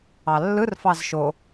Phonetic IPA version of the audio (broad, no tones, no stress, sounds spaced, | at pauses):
ɑ lː ɯ r f ɑ z ʃ o